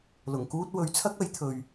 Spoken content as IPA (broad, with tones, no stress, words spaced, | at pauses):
lʊ˨˩ŋkuː˥t̚ wɵ˨˥ɥt͡sʰɐ˥k̚ɐ˨˥jt̪ʰɵ˨ɥ